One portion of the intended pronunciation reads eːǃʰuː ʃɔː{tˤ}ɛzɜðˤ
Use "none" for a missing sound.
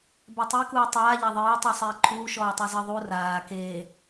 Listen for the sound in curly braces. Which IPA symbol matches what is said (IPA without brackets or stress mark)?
tˤ